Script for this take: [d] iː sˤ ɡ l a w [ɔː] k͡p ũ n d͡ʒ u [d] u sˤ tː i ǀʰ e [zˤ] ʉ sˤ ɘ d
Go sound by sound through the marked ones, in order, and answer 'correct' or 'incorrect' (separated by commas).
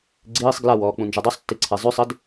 incorrect, correct, incorrect, correct